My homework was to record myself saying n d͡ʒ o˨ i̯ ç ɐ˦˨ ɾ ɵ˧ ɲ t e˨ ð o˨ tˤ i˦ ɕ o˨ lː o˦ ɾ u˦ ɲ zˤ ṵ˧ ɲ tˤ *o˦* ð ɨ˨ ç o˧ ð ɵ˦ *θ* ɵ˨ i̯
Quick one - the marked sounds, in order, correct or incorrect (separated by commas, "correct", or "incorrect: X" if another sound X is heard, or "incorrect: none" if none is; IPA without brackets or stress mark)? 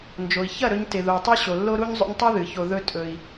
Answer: incorrect: ɵ˦, incorrect: tʼ